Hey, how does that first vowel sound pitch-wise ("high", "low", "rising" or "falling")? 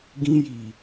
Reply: high